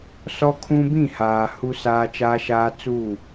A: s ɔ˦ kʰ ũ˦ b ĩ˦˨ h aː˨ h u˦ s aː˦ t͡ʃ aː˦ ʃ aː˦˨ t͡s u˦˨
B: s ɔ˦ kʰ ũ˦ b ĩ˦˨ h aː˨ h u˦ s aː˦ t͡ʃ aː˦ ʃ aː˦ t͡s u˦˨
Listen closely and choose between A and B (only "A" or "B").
B